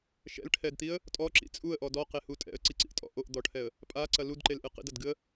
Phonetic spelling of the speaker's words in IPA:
ʃ ɛ̰ l ʈʰ ɛ d t̪ i ə̯ | tʼ ɔ ǁ ḭ t͡sʼ u ə̯ ʔ ɔ d ɔ q e h u tʼ ɛ̰ ə̯ ǀ i ǀ ḭ ʔ tʼ ɔ̰ ʔ o ʔ d̪ ɔ ʈʰ ɛ ə̯ | pʼ a ǀ ɐ l u d ǃ e l ʔ ɨ q ḭ d ɐ d ɡ ɨ ə̯

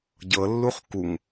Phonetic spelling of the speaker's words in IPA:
ɟ ɤ lː u χ k u ŋ

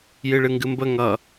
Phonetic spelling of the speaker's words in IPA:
j ɨ ɭ ɨ ŋ ɡ ɨ m b ə ŋ ʌ

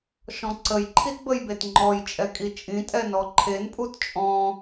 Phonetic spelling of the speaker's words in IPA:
ʃ ɔ̃ ǀ ə j ǃʰ i t b ə j b e t ŋ͡ǃ ɔ j t͡ʃʼ ɛ kʼ i t͡ʃʼ ĩ tʼ ɛ n ɔ ǃʰ e n pʼ u t t͡ʃʼ ɔ̃

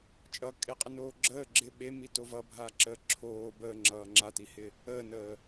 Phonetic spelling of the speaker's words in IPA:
t͡ʃʼ ʌ kʼ e qʼ ɪ n oː ɡ͡ǁ əː ɡ͡ǁ ɪ ɓ e m i t o v ʌ bʱ a ǁ əː ǁʰ oː b əː ŋ͡ǁ ʌː ŋ͡ǁ a t i h ɪ | əː n əː

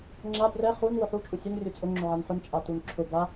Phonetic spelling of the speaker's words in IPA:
ŋ͡ǁ a b r ɛ χ u n w ʊ ħ u t͡ʃʼ u sʲ u n rʲ u t͡sʼ ʊ ŋ͡ǁ ʊ ʕ a n ħ ʊ n t͡ʃʼ a t u n ǁʰ ʊ ɡ a

